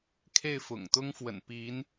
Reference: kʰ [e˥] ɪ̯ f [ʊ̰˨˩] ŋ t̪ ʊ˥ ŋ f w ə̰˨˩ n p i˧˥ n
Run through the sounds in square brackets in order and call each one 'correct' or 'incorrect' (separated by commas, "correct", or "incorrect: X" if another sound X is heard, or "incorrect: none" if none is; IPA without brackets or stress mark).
incorrect: e˥˩, correct